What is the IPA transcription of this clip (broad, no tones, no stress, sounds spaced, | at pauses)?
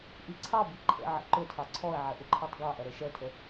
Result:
ʔ i ǀʰ ɑ b i ǃʰ ə̰ ʕ ə̰ ǃ ʊ tʰ ɑ ǀʰ ɔ ə̯ ʕ ɐ ʔ ʊ ǃʰ ɑ tˤ ɡ ɑ ʔ ɐ ɾ ɤ ʃ ɛ tʰ ə